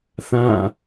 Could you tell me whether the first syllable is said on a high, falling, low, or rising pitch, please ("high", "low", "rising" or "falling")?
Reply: falling